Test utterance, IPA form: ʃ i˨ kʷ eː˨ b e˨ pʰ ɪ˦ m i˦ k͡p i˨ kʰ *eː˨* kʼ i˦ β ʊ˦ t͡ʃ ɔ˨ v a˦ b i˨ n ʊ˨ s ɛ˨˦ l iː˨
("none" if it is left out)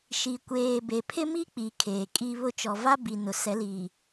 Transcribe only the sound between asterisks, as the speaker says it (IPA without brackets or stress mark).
eː˨